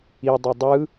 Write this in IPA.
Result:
i dˤ o dˤ ɯ

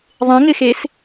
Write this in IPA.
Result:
ðˤ ẽ ŋ ɪ x e s

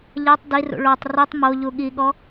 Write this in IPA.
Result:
ʎ ɛ tˤ d i r ṵ ɭ o tˤ r i tˤ m o ʎ u ɠ i ɠ ɔ

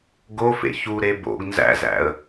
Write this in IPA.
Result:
ɡ o f ḛ ç u ɾ e b o̰ ɡ n z æ̰ z æ̰ ə̯

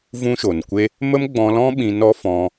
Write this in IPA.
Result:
v ũ˦ ʃ o˨ n kʷ e˦ | m ə˦ m ɡ͡b ɔ̃˧ l ɔ̃˦ ɓ ĩ˧ n ɔ˦ f ɔ̃˧

